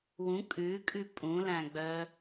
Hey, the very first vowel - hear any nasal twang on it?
yes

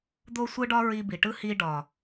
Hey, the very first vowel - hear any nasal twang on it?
no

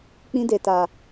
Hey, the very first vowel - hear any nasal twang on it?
yes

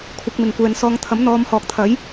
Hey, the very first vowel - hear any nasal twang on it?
no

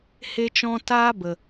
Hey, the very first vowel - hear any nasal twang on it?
no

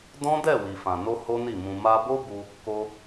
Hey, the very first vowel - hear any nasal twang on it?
yes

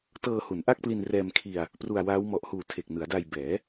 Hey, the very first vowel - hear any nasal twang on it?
no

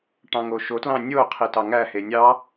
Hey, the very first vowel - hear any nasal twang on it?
yes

